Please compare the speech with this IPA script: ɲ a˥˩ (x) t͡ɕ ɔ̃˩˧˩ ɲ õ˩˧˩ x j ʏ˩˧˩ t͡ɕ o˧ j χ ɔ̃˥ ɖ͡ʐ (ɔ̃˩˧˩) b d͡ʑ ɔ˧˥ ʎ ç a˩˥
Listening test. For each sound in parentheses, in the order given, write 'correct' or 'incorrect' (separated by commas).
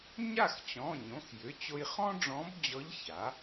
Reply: correct, incorrect